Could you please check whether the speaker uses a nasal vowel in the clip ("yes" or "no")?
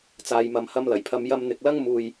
no